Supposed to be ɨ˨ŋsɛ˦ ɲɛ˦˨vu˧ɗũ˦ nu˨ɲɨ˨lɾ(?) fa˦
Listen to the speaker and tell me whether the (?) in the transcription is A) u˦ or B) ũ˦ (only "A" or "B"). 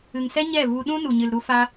A